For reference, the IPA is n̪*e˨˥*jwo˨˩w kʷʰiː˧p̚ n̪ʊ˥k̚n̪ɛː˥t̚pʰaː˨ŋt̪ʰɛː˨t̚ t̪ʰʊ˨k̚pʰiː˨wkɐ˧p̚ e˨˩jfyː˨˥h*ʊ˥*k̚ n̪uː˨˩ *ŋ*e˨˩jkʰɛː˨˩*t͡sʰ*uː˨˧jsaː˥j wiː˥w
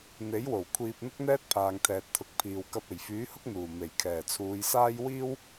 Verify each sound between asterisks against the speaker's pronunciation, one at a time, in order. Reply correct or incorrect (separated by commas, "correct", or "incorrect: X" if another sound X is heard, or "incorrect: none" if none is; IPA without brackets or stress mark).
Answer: correct, correct, incorrect: m, correct